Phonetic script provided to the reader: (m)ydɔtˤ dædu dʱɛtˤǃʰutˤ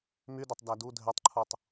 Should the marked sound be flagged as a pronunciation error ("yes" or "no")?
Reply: no